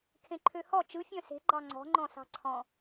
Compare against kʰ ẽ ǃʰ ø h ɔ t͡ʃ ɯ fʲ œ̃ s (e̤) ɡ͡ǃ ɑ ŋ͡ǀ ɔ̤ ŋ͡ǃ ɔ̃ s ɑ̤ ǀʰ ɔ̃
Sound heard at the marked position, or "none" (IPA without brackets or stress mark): e̤